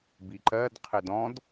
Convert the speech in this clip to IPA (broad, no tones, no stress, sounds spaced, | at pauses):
b i ǃ ɜ d qʰ ɪ d ɔ̃ d